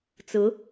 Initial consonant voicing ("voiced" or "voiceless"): voiceless